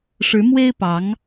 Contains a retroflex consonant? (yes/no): yes